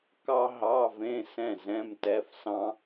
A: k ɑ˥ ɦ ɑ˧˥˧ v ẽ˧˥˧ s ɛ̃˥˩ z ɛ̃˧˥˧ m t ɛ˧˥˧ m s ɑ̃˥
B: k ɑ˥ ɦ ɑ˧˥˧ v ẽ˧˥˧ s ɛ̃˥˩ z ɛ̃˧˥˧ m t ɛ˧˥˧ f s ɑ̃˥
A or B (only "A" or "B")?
B